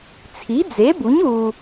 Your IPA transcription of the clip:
t͡sʰi˨˥d͡ze˨˥bu˨˥ɲ u˧

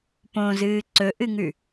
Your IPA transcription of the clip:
põzɨː ǀɵʔɨŋʉ

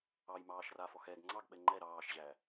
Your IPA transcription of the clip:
ɑjmɑːʃrafɔx ɛɡ ŋ͡ǀɑɡɓɛ ŋ͡ǃɛ ɾɑːʃʑæ

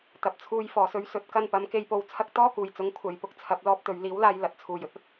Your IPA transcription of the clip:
t̪ɐ˨p̚t͡sʰuː˧j fɔː˨˩sɵ˧ɥ sɵ˨˥t̚kɐ˧n pɐ˨˥mke˧jpo˧wt͡sʰɐ˥k̚ t̪ɔː˥ kuː˨˩jt͡sʊ˨˥ŋ kʷʰɐ˨jpʊ˥k̚t͡sʰɐ˨˥p̚ lɔː˧p̚t̪ɵ˨˧ɥliː˨˥wlaː˧j lɐ˨t̚t͡sʰuː˨j ɵ˧t̚ɐ˨t̚

